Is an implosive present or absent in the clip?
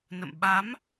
present